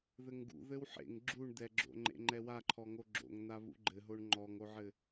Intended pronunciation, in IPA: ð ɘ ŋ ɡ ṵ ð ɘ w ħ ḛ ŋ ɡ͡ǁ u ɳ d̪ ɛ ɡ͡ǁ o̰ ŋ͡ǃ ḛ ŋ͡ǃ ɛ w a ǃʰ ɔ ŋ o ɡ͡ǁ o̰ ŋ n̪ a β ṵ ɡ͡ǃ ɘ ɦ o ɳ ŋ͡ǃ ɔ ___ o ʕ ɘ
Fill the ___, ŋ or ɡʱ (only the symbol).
ŋ